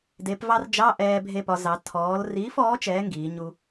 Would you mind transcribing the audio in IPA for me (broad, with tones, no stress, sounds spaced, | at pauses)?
d e˩˧ p v ɑ˧ r d͡ʒ ɑ˧˥˧ ʔ ɛː˧ bʱ e˧ p ɒ˩˧ z ɑ˩˧ tʰ ɔː˩˧ l r iː˨˥ f ɔː˨˥ t͡ʃ ɛː˨˥ ŋ ɡ iː˩˧ ɲ u˧